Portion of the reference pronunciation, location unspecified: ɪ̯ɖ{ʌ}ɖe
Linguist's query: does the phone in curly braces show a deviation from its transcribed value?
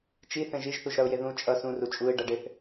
no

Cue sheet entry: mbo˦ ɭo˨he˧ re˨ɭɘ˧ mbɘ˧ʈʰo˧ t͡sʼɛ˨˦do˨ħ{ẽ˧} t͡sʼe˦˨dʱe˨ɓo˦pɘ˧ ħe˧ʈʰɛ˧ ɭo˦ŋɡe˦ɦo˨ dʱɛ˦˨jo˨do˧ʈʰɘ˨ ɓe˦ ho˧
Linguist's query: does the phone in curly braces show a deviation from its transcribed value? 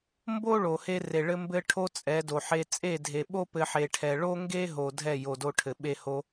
yes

